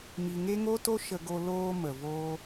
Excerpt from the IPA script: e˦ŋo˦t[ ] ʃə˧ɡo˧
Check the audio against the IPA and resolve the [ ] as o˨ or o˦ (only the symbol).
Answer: o˦